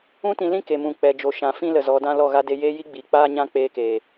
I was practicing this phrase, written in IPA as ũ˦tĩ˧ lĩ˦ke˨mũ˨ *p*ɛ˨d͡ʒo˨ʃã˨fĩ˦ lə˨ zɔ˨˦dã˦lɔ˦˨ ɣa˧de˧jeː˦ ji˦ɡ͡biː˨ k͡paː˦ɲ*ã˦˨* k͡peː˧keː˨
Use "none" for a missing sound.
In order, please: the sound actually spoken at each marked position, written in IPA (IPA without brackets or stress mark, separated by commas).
k͡p, ã˦